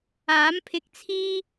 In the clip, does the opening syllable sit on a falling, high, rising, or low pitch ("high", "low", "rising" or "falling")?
rising